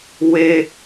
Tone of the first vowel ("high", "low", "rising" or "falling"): high